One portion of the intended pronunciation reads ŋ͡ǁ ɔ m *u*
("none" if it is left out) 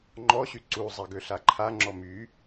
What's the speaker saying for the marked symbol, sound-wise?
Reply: y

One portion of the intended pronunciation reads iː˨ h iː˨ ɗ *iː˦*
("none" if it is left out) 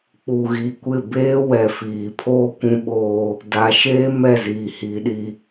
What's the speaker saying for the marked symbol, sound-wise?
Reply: i˦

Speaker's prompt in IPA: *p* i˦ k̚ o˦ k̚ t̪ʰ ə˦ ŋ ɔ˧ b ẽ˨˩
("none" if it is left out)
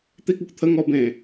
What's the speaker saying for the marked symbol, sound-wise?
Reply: t̪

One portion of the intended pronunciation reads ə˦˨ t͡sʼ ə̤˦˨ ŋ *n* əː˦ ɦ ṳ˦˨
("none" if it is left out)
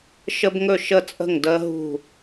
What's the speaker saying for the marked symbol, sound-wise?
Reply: d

